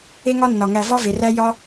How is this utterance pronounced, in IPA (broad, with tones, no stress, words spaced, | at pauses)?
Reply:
e˥ŋɒ˥nːɒ˩ ŋæ˨vɒ˥ve˩ræ˦ jɒ˦